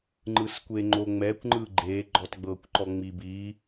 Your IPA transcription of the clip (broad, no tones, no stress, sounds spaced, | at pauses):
ŋ͡ǃ ɯ s kʷ e ŋ͡ǃ o ŋ͡m ɛ kʷ ŋ͡ǃ ɯ ɡ͡ǃ e ɡ͡ǃ ɔ t ɡ͡b ɤ kʷ ǃ ɔ ŋ͡m i b i